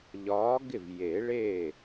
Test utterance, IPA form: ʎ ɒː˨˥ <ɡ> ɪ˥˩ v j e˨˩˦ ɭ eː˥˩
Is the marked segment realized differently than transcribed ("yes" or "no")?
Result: no